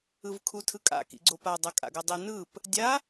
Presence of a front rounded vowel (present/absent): absent